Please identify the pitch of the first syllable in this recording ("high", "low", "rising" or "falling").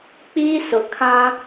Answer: high